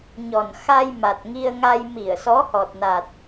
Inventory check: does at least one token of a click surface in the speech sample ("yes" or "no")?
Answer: no